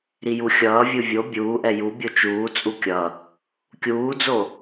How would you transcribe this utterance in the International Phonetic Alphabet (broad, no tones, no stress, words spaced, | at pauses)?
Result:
ɾijuxʲʌːvʲɯ vʲo bʲuːʔɛ jubʲo t͡ʃuːt͡sʼu kʲʌ | kʲuːd͡zo